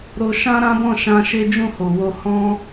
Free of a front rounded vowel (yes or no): yes